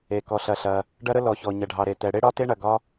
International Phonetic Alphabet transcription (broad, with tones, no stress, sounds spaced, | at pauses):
e˩ k ɔ˩ ɬ ɐ˩ ɬ ɐ˩ | ɖ ɐ˥ ɾ ə˥ l ɔ˩ ç ɔ˩ ɲ ɐ˩ ɖʱ ɑ˩ ɾ e˩ t ɛ˩ ɽ e˥ ɽ ɒ˥ t e˥ ɳ ɐ˩ ɡ ɒ˥